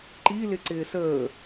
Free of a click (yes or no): no